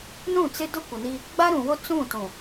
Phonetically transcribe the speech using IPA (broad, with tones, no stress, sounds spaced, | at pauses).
n ũ˦˨ t͡s ɪ˦ d ʊ˦ kʷ ɪ˨ n i˦ | ɡ͡b a˦ ɾ ũ˨ w o˦ t͡s ũ˦˨ t ũ˨